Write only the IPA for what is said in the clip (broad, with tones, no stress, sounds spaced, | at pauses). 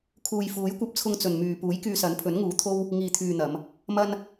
kʰ uː˨ j f uː˨˥ j kʷ ɐ˧ p̚ t͡sʰ ʊ˧ ŋ t͡s ɵ˨ n m yː˨ p uː˨˥ j k yː˧ s ɐ˨˥ n pʰ ɵ˨˥ n ŋ uː˨ t̪ʰ o˥ w | ŋ iː˨ t̪ʰ yː˨ n̪ ɐ˨˧ m | m ɐ˥ n